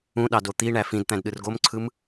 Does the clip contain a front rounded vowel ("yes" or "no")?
no